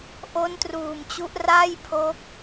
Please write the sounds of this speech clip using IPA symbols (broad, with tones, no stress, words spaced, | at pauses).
ʔo˦˥ntruː˨˩mt͡ɕu˦˥ʔ ra˥˩jpʰo˦˥k̚